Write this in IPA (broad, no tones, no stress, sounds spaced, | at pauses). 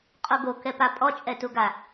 qʼ o ɡ o k ɛ p a pʼ ɔ t͡ʃʼ ɛ t u ɡ a